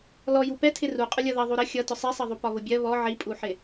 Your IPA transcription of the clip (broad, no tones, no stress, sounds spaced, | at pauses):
l ɔ j u p ɛ tʰ ɪ r u qʼ ʊ lʲ ʌ ð ʌ ðˤ u ɾ ə xʲ ʌ t ʊ sˤ ɛ sˤ ʌ ðˤ u p ɒ β ʊ bʲ ɜ β ɔ ʕ i pʼ u ħ ɪ